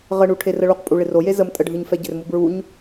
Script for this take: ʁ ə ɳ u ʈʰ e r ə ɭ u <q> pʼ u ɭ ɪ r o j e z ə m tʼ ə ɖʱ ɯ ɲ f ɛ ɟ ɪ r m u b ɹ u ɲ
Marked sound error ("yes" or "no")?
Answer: no